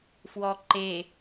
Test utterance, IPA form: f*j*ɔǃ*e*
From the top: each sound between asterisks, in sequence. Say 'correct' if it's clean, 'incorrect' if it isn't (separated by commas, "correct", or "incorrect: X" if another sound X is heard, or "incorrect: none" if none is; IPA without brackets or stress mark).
incorrect: w, correct